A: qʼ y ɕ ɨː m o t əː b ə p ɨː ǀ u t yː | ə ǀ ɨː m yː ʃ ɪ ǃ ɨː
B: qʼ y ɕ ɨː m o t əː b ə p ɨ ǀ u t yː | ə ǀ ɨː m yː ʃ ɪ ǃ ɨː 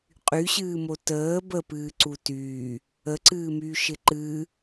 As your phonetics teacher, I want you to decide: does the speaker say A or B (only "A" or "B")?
A